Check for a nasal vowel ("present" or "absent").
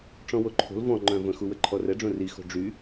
present